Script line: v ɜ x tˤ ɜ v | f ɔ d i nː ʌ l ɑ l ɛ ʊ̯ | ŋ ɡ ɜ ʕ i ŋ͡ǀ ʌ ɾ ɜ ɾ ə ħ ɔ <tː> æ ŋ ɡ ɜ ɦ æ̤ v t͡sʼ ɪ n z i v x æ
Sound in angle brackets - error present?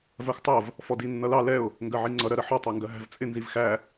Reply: yes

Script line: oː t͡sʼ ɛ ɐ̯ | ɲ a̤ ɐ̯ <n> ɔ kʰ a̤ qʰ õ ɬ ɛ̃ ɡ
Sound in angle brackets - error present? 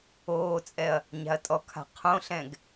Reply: yes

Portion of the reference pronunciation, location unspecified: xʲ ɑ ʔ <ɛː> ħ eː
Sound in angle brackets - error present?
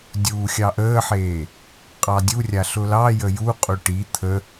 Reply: yes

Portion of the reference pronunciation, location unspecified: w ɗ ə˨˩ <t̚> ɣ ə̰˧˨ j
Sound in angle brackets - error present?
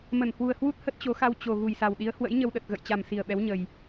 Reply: no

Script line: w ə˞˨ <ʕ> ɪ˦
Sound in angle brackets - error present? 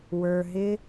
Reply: yes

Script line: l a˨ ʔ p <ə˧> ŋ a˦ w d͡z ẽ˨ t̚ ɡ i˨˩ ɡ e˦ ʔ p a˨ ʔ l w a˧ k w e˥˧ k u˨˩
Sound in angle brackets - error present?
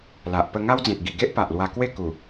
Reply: no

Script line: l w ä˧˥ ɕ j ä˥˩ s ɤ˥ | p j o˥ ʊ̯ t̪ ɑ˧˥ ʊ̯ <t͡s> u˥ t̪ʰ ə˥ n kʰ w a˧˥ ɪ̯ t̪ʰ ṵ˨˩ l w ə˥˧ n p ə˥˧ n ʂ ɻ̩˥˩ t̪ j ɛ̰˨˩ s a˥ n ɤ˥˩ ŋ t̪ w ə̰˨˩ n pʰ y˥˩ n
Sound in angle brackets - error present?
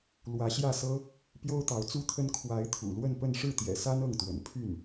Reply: no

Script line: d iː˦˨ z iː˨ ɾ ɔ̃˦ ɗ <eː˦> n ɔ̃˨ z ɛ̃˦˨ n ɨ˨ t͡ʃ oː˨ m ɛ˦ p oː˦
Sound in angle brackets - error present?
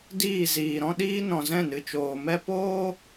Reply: yes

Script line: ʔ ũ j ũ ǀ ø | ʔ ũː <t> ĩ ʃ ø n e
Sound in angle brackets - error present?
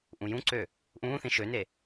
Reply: yes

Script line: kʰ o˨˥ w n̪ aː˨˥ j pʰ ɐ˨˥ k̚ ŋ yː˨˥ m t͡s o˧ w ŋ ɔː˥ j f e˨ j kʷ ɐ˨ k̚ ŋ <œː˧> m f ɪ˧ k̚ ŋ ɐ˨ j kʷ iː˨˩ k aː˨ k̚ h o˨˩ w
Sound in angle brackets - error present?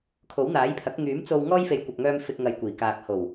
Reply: no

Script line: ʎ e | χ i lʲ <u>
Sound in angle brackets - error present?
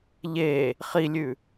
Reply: yes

